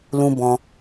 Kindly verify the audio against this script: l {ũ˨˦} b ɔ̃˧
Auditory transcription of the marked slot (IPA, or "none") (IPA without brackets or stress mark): ũ˦